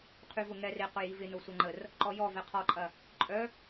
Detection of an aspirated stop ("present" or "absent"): present